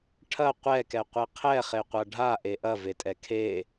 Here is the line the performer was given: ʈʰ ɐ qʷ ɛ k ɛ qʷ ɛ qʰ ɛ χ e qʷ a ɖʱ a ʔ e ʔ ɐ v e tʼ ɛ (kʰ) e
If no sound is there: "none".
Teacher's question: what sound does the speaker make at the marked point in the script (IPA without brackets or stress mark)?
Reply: kʰ